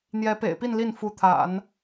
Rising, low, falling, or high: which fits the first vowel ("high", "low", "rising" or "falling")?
rising